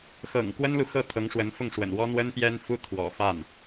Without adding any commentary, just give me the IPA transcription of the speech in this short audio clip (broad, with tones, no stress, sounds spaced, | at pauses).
x ɤ̰˨˩ ŋ k w ə˥ n l u˨ x ɤ˥˩ t̪ʰ ɤ˧˥ ŋ ʂ w ə˧˥ n f ʊ˥˩ ŋ ʂ w ə̰˨˩ n w ɔ˥ n̪ w ə˥ n p j ɛ˥ n f u˥ t̪ʰ w ɔ̰˨˩ f a˥˩ n